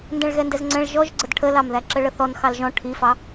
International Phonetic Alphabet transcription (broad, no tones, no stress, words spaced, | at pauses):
ndɛ̃ɭɣɛndɛzŋ͡ǀɛ̃ɭ ʒɔʒɡ͡ǀəd ʈʰəlɑmðæ ǁəɭəθɔn xɑlʒɔ̃ ʈʰifɑ